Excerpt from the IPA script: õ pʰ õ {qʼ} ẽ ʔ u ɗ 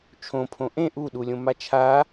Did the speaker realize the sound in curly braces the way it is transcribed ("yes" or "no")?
no